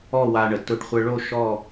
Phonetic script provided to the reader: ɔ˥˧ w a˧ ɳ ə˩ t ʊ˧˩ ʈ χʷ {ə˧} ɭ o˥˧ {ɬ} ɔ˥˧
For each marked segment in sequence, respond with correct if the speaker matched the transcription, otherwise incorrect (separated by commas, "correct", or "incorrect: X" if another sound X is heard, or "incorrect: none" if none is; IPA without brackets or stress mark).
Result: correct, incorrect: ʃ